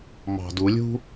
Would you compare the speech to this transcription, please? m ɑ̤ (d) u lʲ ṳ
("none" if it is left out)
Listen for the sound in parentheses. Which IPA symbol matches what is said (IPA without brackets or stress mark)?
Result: d